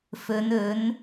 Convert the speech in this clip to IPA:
f ɵ˨˧ n ɵ˨˥ n

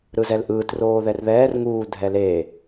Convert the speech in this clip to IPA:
ɾ ɯ z ɛ l ʔ ɯː t r oː ð ɛ r ð ɛː r ŋ uː dʱ ɛ l eː

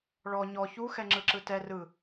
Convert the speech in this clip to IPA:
ɭ ɔ ɲ ɔ ç u x ɛ ŋ͡ǁ ɯ ǁ ɯ t ɛ r ɯ

